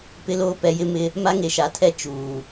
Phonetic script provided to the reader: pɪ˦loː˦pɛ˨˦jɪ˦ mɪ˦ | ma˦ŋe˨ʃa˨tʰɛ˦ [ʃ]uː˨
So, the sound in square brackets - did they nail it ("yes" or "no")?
no